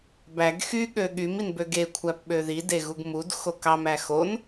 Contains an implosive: yes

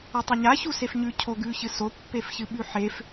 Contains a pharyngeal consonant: yes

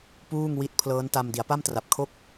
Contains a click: no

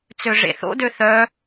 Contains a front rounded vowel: yes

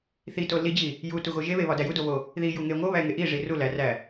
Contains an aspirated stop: no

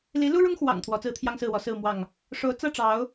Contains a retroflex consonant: yes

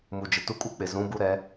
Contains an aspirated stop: no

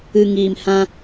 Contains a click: no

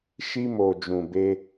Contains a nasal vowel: yes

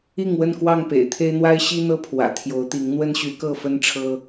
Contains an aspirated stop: yes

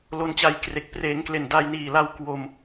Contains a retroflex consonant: no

